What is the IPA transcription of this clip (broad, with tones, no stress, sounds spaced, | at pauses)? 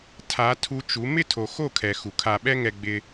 tʰ a˨˦ tʰ u˧ t͡ʃ u˨˦ m ɪ˦˨ tʰ o˨ x o˦˨ kʰ ɛ˨ x u˨ kʰ a˧ ɓ ɛ˦ ŋ ɛ˧ ɡ͡b ɪ˧